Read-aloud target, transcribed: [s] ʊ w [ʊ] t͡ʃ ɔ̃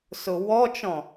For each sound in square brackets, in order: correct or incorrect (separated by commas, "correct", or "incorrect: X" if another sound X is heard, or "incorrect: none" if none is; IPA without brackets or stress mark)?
correct, incorrect: ɔ